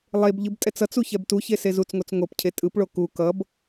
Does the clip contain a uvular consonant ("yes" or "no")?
no